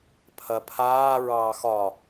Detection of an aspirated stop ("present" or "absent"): present